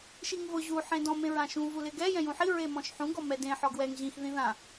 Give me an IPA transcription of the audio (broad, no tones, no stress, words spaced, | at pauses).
ʃiŋvʊ ʑu ħẽdɔ̃ mẽɹãʃũ vulɪɡɛ jɛ̃jũħi ɹemɔ̃ʃħũ ɡɔmɛdẽ ħɔɡwɛŋ ʑĩx ðĩðã